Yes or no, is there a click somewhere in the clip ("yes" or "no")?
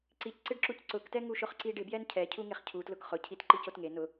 yes